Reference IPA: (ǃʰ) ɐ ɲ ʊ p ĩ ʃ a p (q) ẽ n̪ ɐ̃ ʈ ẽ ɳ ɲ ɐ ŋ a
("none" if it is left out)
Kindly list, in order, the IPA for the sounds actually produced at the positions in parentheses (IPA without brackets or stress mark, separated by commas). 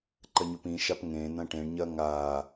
ǃ, ŋ